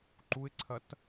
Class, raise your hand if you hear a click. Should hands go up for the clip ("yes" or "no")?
yes